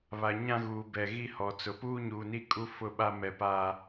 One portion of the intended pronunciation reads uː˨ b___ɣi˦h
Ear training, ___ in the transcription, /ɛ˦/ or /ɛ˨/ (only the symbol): ɛ˨